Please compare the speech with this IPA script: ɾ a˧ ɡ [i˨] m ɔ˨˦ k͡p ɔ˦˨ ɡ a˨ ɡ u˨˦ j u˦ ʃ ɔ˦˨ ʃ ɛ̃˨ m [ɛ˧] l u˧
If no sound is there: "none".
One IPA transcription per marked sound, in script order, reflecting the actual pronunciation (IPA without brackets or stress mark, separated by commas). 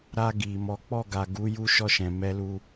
i˨, ɛ˧